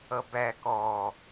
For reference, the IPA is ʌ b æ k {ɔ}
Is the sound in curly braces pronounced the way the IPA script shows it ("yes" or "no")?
yes